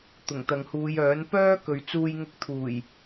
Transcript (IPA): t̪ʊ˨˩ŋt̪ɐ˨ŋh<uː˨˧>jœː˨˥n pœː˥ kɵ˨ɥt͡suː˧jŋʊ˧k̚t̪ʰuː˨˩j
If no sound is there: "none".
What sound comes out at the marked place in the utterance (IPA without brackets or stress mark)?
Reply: uː˨˧